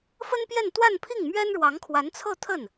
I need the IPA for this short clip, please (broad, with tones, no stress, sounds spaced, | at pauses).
f ə˥ n p j ɛ˥˧ n t̪ w a˥˧ n pʰ i˥˩ ŋ m ɥ ɛ˥ n ɻ w ɑ˧˥ ŋ kʰ w a˧˥ n t͡sʰ ɤ˥˧ t̪ʰ ə˥˩ n